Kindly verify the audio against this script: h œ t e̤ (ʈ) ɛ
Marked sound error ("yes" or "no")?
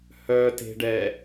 yes